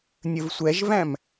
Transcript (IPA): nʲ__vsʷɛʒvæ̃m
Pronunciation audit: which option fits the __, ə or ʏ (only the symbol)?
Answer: ə